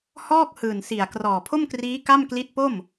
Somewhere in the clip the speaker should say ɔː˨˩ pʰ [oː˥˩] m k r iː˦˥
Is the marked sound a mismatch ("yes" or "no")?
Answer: yes